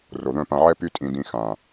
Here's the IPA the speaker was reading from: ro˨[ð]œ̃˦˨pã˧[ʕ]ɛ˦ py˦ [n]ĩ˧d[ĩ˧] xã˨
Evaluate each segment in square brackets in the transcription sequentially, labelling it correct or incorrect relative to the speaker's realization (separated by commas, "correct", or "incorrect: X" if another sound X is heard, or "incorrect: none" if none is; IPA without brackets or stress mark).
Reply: correct, correct, incorrect: tʼ, correct